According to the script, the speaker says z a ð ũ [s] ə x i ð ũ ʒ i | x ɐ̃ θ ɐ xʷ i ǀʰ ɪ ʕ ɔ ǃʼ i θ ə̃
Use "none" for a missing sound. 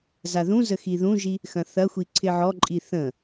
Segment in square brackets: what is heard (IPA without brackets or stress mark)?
z